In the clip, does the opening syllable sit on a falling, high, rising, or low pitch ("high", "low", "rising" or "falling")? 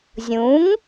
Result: rising